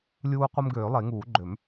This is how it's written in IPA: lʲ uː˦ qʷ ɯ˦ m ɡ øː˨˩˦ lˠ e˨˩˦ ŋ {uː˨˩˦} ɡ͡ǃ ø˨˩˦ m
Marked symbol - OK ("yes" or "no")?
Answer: yes